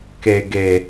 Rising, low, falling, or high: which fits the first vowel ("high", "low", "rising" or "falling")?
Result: low